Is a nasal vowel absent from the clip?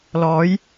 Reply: yes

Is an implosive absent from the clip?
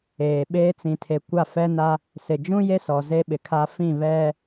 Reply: no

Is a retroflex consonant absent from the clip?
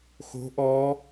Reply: yes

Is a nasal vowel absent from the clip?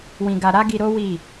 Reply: no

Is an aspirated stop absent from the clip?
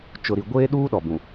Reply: yes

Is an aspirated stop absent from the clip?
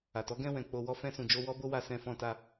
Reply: yes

